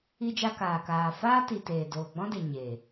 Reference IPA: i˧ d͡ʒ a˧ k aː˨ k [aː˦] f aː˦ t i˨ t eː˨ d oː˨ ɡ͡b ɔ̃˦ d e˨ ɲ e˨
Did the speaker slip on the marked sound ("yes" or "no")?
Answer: yes